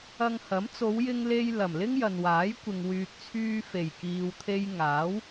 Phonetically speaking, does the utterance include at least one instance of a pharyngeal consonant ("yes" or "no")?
no